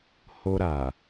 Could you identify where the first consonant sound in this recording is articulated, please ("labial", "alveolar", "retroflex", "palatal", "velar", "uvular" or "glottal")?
glottal